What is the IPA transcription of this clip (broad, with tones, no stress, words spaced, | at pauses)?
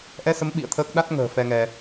ʔɛ˧sə˨˦m ɓḭ˧˨ə̯t̪ʰəː˦˥k̚ ɗa˦˥t̚ŋə̤ː˨˩ fɛ˧ŋɛ˧